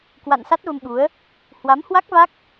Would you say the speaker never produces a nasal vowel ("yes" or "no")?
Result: yes